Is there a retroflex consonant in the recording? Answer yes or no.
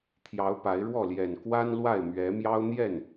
yes